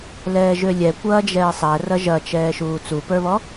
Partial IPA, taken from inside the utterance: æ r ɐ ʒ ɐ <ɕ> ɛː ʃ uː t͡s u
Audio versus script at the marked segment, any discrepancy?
yes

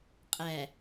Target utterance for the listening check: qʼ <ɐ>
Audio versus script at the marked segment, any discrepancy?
yes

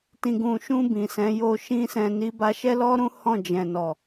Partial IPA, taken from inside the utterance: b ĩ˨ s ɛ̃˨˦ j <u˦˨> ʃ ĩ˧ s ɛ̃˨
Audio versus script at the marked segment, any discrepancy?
yes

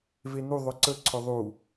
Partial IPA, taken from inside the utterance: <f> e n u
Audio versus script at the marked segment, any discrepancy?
yes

